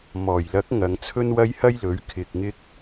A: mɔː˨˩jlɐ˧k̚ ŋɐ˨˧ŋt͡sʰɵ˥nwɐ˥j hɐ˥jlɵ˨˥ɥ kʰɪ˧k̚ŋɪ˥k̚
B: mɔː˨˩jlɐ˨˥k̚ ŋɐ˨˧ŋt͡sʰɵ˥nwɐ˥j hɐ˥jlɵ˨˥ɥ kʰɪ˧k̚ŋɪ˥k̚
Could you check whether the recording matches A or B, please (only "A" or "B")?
B